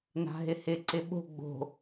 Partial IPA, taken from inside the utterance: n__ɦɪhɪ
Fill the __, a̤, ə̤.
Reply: a̤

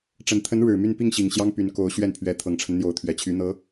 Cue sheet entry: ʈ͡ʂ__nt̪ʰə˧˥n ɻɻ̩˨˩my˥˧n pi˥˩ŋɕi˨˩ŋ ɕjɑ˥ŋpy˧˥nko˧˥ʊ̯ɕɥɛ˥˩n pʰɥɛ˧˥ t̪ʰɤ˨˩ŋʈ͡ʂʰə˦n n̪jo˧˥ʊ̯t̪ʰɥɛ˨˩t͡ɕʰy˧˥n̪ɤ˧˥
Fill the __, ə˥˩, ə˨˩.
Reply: ə˨˩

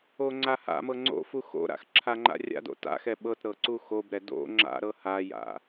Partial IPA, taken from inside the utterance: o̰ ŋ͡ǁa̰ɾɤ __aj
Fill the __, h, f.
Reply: h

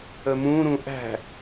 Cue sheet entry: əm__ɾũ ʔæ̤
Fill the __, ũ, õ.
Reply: ũ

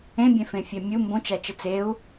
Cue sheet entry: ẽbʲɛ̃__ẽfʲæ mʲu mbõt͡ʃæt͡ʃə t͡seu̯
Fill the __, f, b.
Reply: f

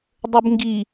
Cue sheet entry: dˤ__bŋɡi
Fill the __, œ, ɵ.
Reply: ɵ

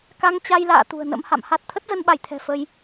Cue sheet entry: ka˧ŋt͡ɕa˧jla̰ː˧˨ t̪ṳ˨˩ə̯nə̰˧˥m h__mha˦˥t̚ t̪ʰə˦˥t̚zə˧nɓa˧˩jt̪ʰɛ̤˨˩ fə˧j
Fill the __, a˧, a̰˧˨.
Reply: a̰˧˨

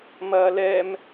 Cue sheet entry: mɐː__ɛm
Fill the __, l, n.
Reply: l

